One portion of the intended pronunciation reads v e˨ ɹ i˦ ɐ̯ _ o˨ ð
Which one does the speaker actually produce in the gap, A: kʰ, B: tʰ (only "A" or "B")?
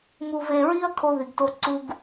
A